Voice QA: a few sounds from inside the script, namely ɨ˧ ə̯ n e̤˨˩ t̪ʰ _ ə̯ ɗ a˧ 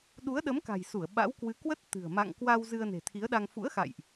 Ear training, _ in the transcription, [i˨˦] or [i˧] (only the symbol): i˨˦